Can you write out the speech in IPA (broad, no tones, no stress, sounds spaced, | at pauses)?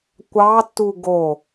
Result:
kʷ ɑ tː u ɡ o